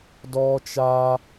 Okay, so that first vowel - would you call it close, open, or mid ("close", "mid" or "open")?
mid